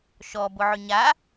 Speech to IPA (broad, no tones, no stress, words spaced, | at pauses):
ʃɔbʊʕʏ ɲa